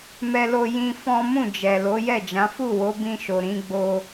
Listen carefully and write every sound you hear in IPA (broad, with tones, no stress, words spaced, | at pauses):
mɛ˦lo˦ jĩ˦ fɔ̃˦ mũ˦˨d͡ʒɛ˨ lo˨˦jɛ˦˨d͡ʒã˨˦ fu˦˨wo˨˦bĩ˧ʃo˨ ɾĩ˨˦ɡ͡bo˧